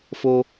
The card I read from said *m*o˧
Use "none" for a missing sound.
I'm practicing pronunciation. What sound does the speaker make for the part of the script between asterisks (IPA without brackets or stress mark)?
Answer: f